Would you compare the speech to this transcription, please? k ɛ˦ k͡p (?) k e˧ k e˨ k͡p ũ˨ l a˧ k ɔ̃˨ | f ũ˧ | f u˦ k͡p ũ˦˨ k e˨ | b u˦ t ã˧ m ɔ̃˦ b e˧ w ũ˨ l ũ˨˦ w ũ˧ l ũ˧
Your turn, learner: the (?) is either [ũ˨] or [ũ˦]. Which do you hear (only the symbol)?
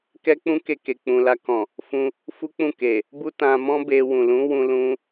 ũ˦